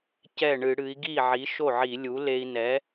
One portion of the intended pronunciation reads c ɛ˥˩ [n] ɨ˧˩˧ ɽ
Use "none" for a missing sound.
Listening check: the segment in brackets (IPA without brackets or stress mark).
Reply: ɳ